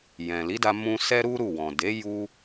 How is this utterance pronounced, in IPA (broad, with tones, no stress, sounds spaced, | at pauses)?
j ɛ̃˨ l i˨˦ d a˧ m ũ˧ s ɛ˦ ɾ u˦ ɾ u˦˨ w ɔ̃˨ d e˨˦ j u˦